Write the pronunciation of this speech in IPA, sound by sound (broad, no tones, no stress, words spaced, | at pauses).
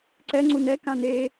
ǀɛŋ͡ǀu nɛ kãne